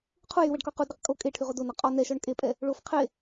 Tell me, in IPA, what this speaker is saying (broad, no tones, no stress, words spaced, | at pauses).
qʰujywɛɖkɔ qudɾɛq kʼo kʼeʈʰyʁo donɒ qʼɔ nɛʃɔɳ kʼepʼɛ | ɭof qʰe